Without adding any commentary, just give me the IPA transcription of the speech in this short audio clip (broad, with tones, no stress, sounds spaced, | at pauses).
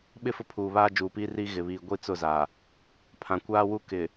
ɓ ɪ˦˨ f ʊ˦ pʰ uː˨ β aː˦ d͡ʒ uː˨ p iː˦ r iː˦ ɣ ɪ˨ β iː˨ ɡʷ i˦ t͡s ʊ˦˨ z a˨ | pʰ ã˨ kʷ aː˦ w u˦ k ɪ˨